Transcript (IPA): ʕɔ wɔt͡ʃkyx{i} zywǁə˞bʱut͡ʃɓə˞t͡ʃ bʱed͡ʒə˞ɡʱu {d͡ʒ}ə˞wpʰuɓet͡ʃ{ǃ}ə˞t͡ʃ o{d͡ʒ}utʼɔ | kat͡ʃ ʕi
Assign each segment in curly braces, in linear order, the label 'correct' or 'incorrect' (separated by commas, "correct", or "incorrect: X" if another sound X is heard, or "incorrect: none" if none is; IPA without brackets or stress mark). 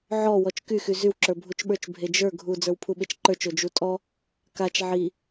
incorrect: y, incorrect: d͡z, correct, correct